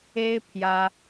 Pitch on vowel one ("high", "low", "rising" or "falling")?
high